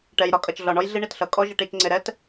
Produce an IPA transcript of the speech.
ʈ ɛ˨ j ɾ ɒ˦ kʼ ʌ˨ t͡ʃ ɮ ɒ˨ ɳ ɔ˦ j ɮ i˦ ɳ i˨ t ɬ ʌ˨˦ kʼ ɔ˦ ʒ ɪ˨ ʈ i˦˨ t͡ʃ ŋ͡ǀ ɪ˨ ɾ ɛ˦ t

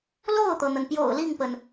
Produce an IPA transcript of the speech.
l o˥˩ ʊ̯ t̪ ɤ˩ n̪ ə˩ n p j o̰˨˩ ʊ̯ l i˥˩ ŋ p ə˩ n

